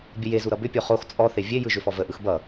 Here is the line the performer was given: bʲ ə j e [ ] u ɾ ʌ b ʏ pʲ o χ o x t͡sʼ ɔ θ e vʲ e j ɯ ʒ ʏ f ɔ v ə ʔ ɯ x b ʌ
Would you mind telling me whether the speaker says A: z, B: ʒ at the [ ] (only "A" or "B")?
A